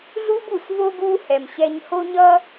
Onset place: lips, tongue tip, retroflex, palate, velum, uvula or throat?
tongue tip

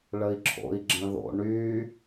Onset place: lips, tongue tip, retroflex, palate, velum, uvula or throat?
retroflex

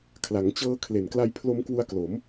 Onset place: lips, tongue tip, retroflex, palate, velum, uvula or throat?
velum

